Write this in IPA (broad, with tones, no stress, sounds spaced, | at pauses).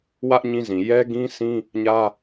w ä˦ ʔ ɲ ĩ˦ z ĩ˨ j ɛ˦ ɡ ĩ˦ sʰ ĩ˦ | ɲ ä˦